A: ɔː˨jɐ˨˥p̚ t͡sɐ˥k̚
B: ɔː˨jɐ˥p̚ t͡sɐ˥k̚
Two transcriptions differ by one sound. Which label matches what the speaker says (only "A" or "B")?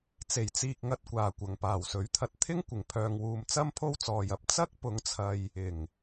A